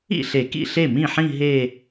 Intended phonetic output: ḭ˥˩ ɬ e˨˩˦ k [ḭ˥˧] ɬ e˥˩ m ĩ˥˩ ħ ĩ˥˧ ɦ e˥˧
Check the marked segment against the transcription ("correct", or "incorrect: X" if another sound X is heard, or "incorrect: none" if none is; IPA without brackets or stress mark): incorrect: ḭ˥˩